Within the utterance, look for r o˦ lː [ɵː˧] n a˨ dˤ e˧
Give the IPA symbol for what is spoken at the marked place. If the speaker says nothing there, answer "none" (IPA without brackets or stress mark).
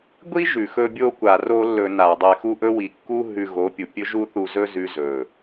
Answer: ɵ˧